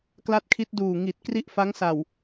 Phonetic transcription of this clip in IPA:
k l a˦˥ t̚ kʰ i˦˥ t̚ d uː˨˩ ŋ i˨˩ t̚ k r i˥˩ ʔ f a˦˥ ŋ s a˨˩ w

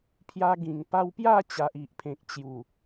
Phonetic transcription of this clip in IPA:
pʰ j a˧ ɡ ĩ˨˩ ŋ p a˧ w p j a˥˧ t͡ɕ a˨ ʔ i˨ ʔ pʰ ẽ˨ k̚ t͡ɕ j u˨˩

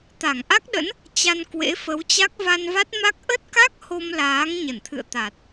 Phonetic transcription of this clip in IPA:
t̪ a˧˩ ŋ ʔ a˦˥ k̚ ɗ ə̰˧˥ n | t͡ɕ a˧ n k w ḛ˧˥ f ə˨˦ w t͡ɕ a˦˥ k̚ v a˧ n v a˦˥ t̚ m a˦˥ k̚ ʔ ə˦˥ t̚ k a˦˥ k̚ h o˧ m l aː˨˦ ŋ ɲ ə˧˩ n t̪ʰ ɨ̰˧˨ ə̯ t̪ a˨˩ t̚

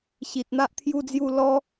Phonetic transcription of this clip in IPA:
ɕ i˨ t̚ n̪ a˦ ʔ t̪ʰ j u˥˧ d͡z j u˥˧ l ɔ˦

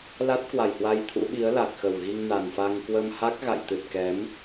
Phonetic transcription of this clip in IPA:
l a˦˥ t̚ k w a˨˩ j h w a˧ j t̪ʰ ṵ˧˥ ɓ i˨˦ ə̯ l a˨˩ k̚ x ə˨˩ w ɣ i˧ ŋ n a˨˩ n f a˧ ŋ k w ə˧ m h a˦˥ k̚ ɣ a̰˧˨ j t̪ ɨ˨˩ t̚ k ɛ˨˦ m

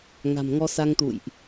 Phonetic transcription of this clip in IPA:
ŋ a̤˨˩ m ŋ ɔ˧ s a˧ ŋ t̪ ṵ˧˨ j ʔ

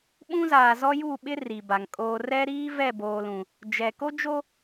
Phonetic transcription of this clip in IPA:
ɓ ũ˦ z aː˨ z ɔ˦ j uː˦˨ ɓ ɪ˦ r i˨ b a˨ ŋ kʼ oː˦ r ɛ˦ ɾ iː˦ v ɛ˦˨ b oː˨ l ũ˨ | d͡ʒ ɛ˨ k o˦ d͡ʒ o˦

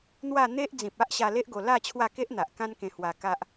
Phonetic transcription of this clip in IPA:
n̪ w a˥˧ n̪ e˦ ʔ d͡z ĩ˨ p̚ a˦ ʔ ɕ a˧ l e˦ ʔ ɡ o˧ l a˥˧ t͡ɕʰ w a˥˧ k e˦ ʔ n̪ a˨ ʔ k ã˦ n k ẽ˧ h w a˧ k a˦ ʔ

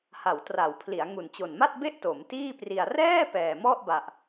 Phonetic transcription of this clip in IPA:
h a˩˦ w t r a˩˦ w pʰ l i˩˦ a̯ ŋ u˨˩ n t͡ɕ o˨˩ n m a˥˩ t̚ b e˥˩ ʔ t o˩˦ m t iː˥˩ p r i˧ a̯ r ɛː˥˩ p ɛː˨˩ m ɔ˥˩ ʔ b a˨˩ ʔ

